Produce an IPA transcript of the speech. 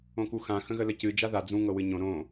õ k u x ã x ə̃ ɣ ə l ə c ɨ d͡ʒ a ð a d͡z ũ ŋ ɤ w ɨ ɲ õ ɾ õ

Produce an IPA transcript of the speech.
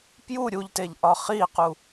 p j u ɾʲ u ʎ t e ʎ ʔ ɒ χ i q u

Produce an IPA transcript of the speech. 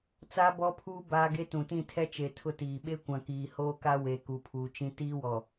t͡s aː˦ b ɔ˦ pʰ uː˦ b aː˦ ɡ e˦ t ũ˨ t ĩ˦˨ tʰ ɛ˦ t͡ʃ e˨ tʰ ʊ˦ t iː˨ ɓ e˦ kʷ ã˨ k iː˨ h oː˦ k a˦ w e˨ k u˨ pʰ uː˨ t͡ʃ ĩ˦ t iː˦ w ɔ˨

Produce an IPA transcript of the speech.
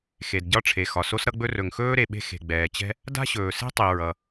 x e˩ d ɟ ɒ˥ ʈ͡ʂʰ e˩ x ɒ˩ s o˥ s ɾ ʌ˥ ɡ͡b ɵ˥ r ɵ˩ ŋ x ɵː˥ ɾ e˩ ɓ e̤˥ x e̤˩ ɡ͡b ɛː˩ t͡ɕ ɛ̤˥ | d a̤˥ ɕ ɵː˩ s e̤˥ tˤ i˩ ɹ ʌ˩

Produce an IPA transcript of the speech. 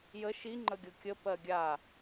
j ə ʃ i ŋ͡ǃ ə ɡʲ ɤ kʲ ə p ɜ ɡʲ a

